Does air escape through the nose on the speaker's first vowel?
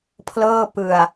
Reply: no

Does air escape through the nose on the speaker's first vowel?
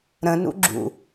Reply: yes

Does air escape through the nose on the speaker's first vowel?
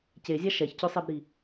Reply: no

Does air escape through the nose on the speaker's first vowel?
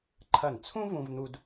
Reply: no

